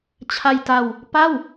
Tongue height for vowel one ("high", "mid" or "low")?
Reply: low